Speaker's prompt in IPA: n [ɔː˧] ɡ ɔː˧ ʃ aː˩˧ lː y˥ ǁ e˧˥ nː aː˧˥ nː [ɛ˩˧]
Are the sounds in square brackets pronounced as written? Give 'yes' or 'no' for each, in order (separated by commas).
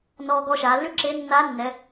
yes, yes